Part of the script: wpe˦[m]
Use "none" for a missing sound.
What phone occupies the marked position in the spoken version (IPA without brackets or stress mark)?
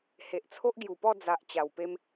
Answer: m